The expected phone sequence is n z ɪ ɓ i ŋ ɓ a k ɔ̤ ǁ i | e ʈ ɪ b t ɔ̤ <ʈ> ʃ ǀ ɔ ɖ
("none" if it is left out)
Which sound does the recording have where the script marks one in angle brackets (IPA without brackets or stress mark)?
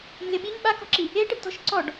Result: none